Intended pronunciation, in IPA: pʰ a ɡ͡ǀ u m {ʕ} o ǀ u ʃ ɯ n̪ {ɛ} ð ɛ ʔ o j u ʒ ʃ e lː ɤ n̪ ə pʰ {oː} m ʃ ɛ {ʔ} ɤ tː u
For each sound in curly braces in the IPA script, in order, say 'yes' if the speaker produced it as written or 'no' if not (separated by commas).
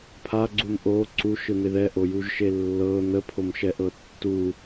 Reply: no, no, no, yes